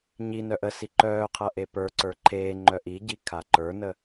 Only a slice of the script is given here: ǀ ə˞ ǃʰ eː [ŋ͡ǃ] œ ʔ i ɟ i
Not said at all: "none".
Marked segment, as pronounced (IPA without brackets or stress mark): ŋ͡ǃ